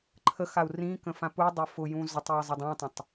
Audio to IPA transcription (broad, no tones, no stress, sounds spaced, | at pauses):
ǃʰ ə x a u̯ r ĩ k ə̃ f ã p u dˤ ʊ f ʊ j ũ z ʊ tˤ j i zˤ ʊ dˤ ũ tˤ ə̃ tˤ